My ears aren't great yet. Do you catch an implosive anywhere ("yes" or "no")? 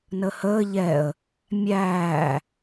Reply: no